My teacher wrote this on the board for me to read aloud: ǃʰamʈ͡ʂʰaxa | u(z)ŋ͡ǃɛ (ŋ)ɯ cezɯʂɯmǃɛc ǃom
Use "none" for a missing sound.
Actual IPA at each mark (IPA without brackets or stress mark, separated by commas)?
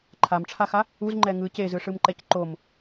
z, ŋ